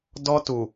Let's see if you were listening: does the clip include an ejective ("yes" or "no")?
no